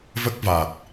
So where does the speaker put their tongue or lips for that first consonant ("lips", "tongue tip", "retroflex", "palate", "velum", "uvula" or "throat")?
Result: lips